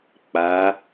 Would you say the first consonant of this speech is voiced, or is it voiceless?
voiceless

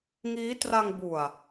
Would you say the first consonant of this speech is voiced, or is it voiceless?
voiced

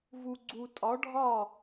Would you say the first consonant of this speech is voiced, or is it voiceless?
voiced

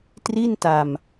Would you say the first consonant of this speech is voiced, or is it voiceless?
voiceless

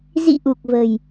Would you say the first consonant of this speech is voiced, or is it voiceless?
voiced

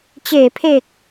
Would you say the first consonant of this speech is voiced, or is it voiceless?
voiceless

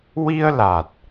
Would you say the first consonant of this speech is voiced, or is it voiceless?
voiced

